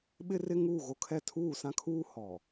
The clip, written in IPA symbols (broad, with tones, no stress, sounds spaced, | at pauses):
ɓ ɪ˦ r ɪ˦ ŋ uː˦˨ ɣ o˦ kʰ ɛ˦ tʰ uː˦˨ s ã˦ kʰ uː˦ h ɔ˨